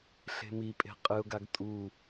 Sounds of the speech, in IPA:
ɬe̤mipʼe̤ qʼɨʊ̯ɡaɡ tʼu

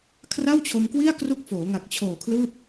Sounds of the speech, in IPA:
kʰra˥˩wt͡ɕʰo˧mkwi˥˩a̯ kru˦˥k̚foː˩˦ ŋa˨˩k̚t͡ɕʰoː˨˩ kʰlɯː˥˩p̚

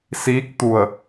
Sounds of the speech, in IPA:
siː˧˥k̚ t̪u˧˩ə̯

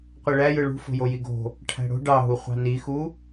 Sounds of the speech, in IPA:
qʷiɭæ jɯɭṳ fo̤jojiɡo̤ | ʈʰæ̤ɽo̤ ɖɑɦu χʷɑ̤nixu

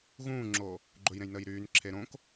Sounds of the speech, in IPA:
ɣũːŋ͡ǁo | ɡ͡ǃɵjɾẽj nəːjɾyːnǁʰe ɾõk

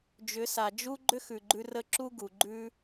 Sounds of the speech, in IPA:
d͡ʒʏ˨˦sa˨d͡ʒu˦ ɡ͡ǃʏ˦xʉ˨ɡ͡ǃʉ˧ rə˧ ǁu˦ɡu˨ ɡ͡ǃʉ˧

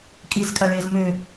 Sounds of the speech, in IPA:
kʼizkʼaɭeːz mø

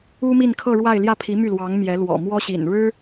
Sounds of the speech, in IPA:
u˥mi˥˧nkʰɤ˥˧ɻwa˥˧ɪ̯ ljä˥˩pʰi˧˥ my˥˩lwɑ˧˥ŋ mjɛ˧˥ lwɔ̰˨˩mwɔ˥ɕḭ˨˩nɻɻ̩˥

